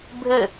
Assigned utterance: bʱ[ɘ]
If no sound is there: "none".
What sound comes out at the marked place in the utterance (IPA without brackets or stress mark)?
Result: ɘ